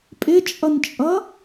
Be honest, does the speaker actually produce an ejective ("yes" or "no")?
yes